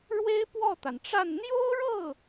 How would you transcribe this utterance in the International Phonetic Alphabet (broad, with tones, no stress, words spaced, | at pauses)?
ɻwe˥ɪ̯pwɔ˥˩t̪a˩nʈ͡ʂa˥˩n n̪jo˥ʊ̯ɻɤ˥˩